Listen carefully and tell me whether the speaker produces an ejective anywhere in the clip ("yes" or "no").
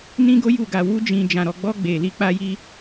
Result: no